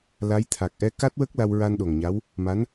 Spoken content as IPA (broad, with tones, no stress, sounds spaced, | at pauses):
l a˧˥ j t̪ʰ a˨˩ k̚ ʔ ɛ˧ k a˦˥ t̚ w ə˦˥ k̚ l a˧ w ɹ a˧ n ɗ o˨˩ ŋ ɲ a˧˥ w | m a˧˥ n